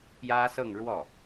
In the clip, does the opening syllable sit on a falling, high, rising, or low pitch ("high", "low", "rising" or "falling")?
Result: high